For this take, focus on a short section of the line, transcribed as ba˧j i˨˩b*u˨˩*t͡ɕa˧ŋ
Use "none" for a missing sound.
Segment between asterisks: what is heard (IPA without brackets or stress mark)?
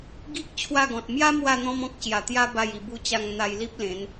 u˧